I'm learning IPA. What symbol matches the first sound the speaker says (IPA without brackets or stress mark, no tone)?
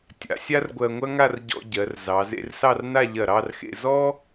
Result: tʲ